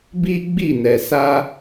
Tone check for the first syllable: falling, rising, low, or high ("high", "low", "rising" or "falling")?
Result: high